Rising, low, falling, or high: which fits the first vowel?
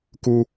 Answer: high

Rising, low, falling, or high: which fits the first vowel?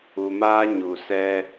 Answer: low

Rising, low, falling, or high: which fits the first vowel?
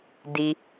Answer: low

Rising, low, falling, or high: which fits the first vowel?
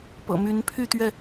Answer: low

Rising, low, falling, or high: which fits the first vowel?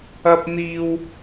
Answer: high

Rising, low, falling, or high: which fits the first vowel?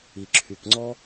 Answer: low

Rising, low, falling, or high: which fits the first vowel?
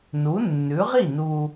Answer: rising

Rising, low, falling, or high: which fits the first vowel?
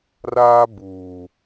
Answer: high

